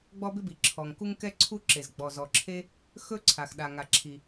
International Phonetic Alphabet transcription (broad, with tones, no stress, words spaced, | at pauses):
ɡ͡bɔ˥bɪ˥bi˩ǁʰɔ˩ŋ ku˥ŋkɛ˥ǀʰu˥ǁe˩z ɡ͡bɔ˩zɔ˩ǁʰe˥ | xɵ˥ǀʰa˩x ɗa˩ŋa˩ǁʰi˩